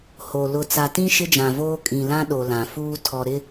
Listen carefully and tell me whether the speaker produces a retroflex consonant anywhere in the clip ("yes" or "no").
no